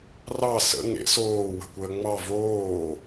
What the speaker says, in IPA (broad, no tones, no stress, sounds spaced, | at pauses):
r ɑ s ə̰ ŋ ḛ s oː w ə̤ kʷ əː ŋ͡m ɑ v oː